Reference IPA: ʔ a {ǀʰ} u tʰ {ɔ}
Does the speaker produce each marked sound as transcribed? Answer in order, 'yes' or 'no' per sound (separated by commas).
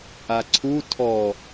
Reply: yes, yes